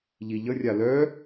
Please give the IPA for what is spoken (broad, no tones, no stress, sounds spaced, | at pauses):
ʎ i ʎ ə rʲ a l œ